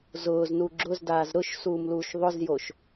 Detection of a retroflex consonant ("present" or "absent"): absent